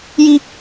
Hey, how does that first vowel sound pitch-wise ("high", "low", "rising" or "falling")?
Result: high